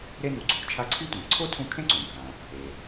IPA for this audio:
ɾe˦ nu˨ǀʰo̤˨t͡ʃʰa˦ ǀʰi˦tʷẽ˩ǀʰo˥ tʰũ˥ kʰẽ˥ǀũ˩bʱã˩ | e˩

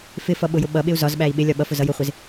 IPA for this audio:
fɪfʌɓʊjʊ ɓʌɓɪu̯ zɒzɓæi̯ ɓɪlʲɒ ɓʌfʊzʌ jʊχʷɪz

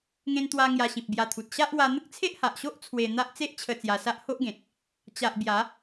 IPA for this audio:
ŋẽ˧nt̪wa˧ ŋja˧ɕĩ˨p̚bja˧t̪ʰu˨t̚ ɕa˦ʔwa˧ n̪ə˦k̚t͡sʰe˦ʔha˨ʔɕo˦ʔ t͡sʰwe˧n̪a˦ʔ t͡se˦ʔt͡ɕʰə˧ t͡sja˧sa˦ʔ ho˦ʔɡẽ˨t̚ | t͡ɕa˨ʔ bja˨˦

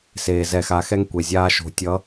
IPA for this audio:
se˨ zɛ˨xa˨˦xɛ˦ŋ kʷe˨zʲaː˦ ʃo̤˨tʲʌ˨˦

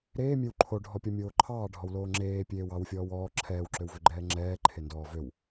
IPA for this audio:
ɾeːmʲew ǃʰoɖʱɔpʲɔmʲoː ǃʰɑːɖʱɔwloː ŋ͡ǁeːpʲeːw ɑwfʲɔːw ɔː ǁʰɛːwǁøwvøɡ͡ǃɛː ŋ͡ǁɛːǃʰendɔː vøw

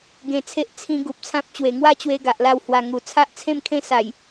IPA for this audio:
ɡẽ˧t͡sʰe˦ʔ t͡sʰĩ˦ ɡu˨p̚t͡sʰã˦p̚t͡ɕwe˨˩ ŋwa˥˧t͡ɕwe˧ ɡa˨ʔla˥˧w hwa˧ŋu˨˩ t͡sʰa˦ʔt͡sʰẽ˥˧mkʰẽ˥˧sa˨˩j

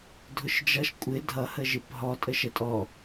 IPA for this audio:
dʱʊʃd͡ʒʌʃ kʷʼɪ dʱʌhəʒɪp ɦɔtʼə ʃətʼɔ

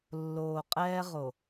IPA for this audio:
lːoː˨qʼɛː˦ʁo˨

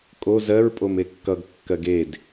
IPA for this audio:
kʼo zɜɹ pʼomekːʌɡ kːɜɡed

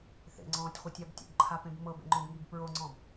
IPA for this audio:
θḛŋ͡ǀɔ̃ːtʲχʷitʲab tʲo̰bǃʰapẽb mɤbḛŋ͡ǃõbŋib pɹoŋ͡ǀɔ̃b

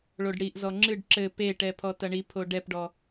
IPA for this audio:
ɭoɖɽiʔzɔ ŋ͡ǁɨɖ ǁɘ peʈɛ pʰɔtɐɳipʰo ɖɛpɖɔ

